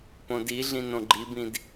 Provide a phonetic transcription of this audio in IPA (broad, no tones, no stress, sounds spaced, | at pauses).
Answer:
p õ d i ɮ ĩ n õ ɡ͡ǃ i b ĩ d